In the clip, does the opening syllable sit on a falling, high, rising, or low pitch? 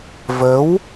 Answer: rising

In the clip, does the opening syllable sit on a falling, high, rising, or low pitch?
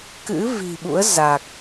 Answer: rising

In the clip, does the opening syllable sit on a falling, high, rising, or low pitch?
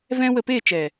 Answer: high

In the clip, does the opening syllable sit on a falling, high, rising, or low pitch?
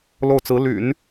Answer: falling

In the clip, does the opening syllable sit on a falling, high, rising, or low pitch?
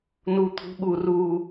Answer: high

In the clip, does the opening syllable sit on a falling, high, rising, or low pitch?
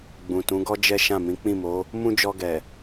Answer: low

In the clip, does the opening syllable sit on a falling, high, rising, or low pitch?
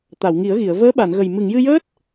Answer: low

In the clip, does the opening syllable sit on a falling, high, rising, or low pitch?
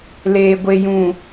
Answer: low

